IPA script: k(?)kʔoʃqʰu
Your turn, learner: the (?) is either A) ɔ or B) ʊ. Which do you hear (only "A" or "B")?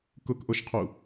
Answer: B